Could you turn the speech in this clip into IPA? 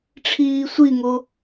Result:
ʈ͡ʂʰiːsʷiŋo

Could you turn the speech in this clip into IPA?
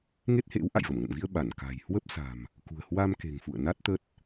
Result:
ŋe˦˥t̚hḛ˧˥w ʔa̰˧˨jvə˧˩mŋə̰˧˨nvi˧ə̯ ɓa˧˩nka̤˨˩j hwə˦˥p̚sa̤˨˩m | kṳ˨˩ə̯hwa˧m ke̤˨˩ŋfṵ˧˨ə̯ na˦˥t̚ t̪ə˦˥t̚

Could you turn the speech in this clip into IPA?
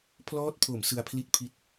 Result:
pʰlɔː˦˥t̚pʰo˩˦m sɯ˧a̯pʰli˥˩t̚pʰi˦˥t̚

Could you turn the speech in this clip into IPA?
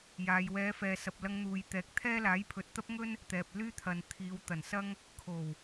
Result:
jaː˧j wɛː˨˧fɛː˨sɐ˨p̚ lɐ˧ŋn̪uː˨j t̪ɛː˨k̚t̪ʰɛː˥ laː˨˥jpʰɵ˨t̚t̪ɐ˥p̚ŋɵ˥n | t̪ɛː˨p̚ lyː˥t̪ʰɐ˨n t̪ʰiː˨˧wt̪ɐ˨˩nsɐ˥ŋ | kʰo˨˩w

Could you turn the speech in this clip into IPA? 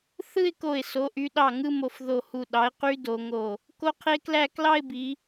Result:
θɯ˥˧ɪ̯ko˧˩ɪ̯ so˩˧ʔy˩˧ɗɑ˧˩ ŋɯ˥˧mo˧˩f ðo˧˩hu˧˩ ɗɑ˨˥ɪ̯qy˦˥ do˩˧ŋo˧˩ | ko˦˥qʰe˦˥klæ˥˧ klɑ˥˧ɪ̯bi˩˧

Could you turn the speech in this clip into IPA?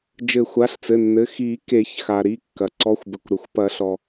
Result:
d͡ʒɘ˨˩˦xʷa˩˧˩ɬt͡sɘ˩˧˩nːɘ˩˧˩ xi˨˩˦ke˨˩˦çxa˩ ɾi˩˧˩kːɐ˩ ǀɔ˩˧˩xʷbɘ˩kʷ ɾɘ˩xʷpɐ˨˩˦ɬɔ˩

